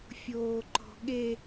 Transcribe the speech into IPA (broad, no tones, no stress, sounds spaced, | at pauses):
fʲ oː ǃ ɔ̤ ɠ e